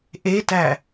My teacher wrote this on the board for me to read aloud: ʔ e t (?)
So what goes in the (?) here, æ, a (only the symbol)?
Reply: æ